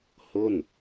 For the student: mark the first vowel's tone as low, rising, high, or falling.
falling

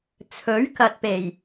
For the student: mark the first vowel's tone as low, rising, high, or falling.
rising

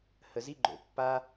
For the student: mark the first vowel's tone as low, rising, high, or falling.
low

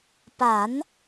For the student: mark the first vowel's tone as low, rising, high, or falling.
rising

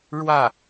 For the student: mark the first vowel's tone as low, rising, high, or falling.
falling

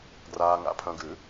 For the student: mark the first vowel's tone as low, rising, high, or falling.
low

